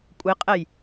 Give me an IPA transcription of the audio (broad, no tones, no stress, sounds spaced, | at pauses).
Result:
kʷʼ e qʼ ɛ j